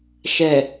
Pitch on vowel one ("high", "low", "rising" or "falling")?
low